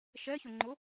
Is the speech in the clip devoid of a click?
no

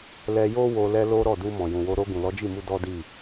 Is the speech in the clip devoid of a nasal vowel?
no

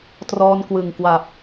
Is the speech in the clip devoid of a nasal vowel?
yes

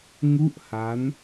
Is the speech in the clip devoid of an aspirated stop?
yes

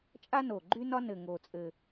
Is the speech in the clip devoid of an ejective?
no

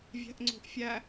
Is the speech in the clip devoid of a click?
no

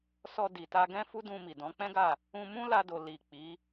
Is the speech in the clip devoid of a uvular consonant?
yes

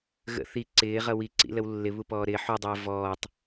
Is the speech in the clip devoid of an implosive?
yes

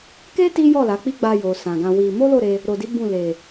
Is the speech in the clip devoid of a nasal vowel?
no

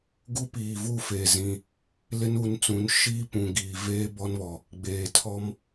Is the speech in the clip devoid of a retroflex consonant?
yes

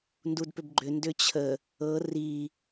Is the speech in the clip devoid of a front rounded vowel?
no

